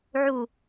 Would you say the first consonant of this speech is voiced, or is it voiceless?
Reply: voiced